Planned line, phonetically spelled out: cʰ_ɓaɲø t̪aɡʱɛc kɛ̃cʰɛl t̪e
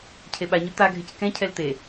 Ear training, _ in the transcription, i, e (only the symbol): e